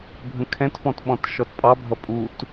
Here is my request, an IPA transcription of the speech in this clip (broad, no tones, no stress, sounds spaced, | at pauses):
bʱ ə̃ kʰ ɛ̃ t f ɔ̃ t ɓ ɔ̃ t ʃ ɔ t pʼ ɑ bʱ ʌ pʼ u t